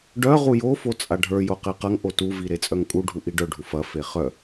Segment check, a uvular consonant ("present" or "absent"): present